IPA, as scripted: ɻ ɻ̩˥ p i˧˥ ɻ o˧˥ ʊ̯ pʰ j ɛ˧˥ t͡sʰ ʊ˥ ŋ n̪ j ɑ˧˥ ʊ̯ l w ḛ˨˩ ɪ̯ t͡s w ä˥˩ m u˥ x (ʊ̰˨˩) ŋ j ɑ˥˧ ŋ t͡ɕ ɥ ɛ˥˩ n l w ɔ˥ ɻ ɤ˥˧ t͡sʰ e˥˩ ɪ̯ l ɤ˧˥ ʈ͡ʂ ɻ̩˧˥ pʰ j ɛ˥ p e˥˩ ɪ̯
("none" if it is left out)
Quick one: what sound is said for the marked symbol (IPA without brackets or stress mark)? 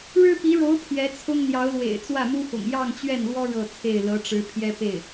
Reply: ʊ̰˨˩